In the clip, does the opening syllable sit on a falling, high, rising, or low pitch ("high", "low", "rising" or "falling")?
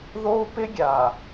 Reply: high